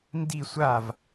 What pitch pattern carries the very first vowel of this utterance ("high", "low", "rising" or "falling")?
falling